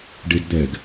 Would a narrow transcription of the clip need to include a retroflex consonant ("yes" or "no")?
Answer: yes